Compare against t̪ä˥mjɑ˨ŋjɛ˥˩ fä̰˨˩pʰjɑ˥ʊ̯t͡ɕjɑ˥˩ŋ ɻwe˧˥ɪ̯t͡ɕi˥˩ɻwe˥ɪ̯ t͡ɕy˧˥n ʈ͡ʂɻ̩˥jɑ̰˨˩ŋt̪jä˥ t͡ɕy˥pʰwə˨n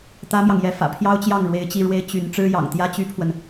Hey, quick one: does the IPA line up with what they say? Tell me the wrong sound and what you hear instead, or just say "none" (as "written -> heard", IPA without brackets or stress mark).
none